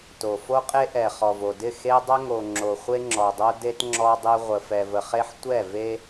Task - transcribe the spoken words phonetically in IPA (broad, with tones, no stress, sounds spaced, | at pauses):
t o˨ f o˦ qʼ e˦ ʔ ɛ˨ χ ɔ˨ v o˨ d ɪ˦˨ x e˦ dˤ ə˦ ŋ o˨ ŋ͡ǁ o˨ χʷ e˦ ŋ͡ǁ ɔ˨ dˤ o˦ d e˦ t ŋ͡ǁ ɔ˦ dˤ ɪ˦ ʁʷ ə˨ f ɛ˨ v ə˨ χ e˦ ħ tʷ ɛ˦˨ v e˦